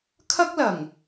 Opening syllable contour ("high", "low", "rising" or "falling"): high